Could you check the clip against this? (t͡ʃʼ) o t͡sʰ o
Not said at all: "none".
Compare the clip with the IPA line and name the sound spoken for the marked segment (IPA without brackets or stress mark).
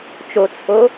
t͡ʃ